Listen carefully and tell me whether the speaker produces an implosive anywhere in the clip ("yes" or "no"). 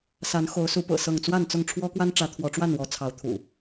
no